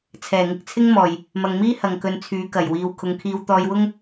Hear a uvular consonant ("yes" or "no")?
no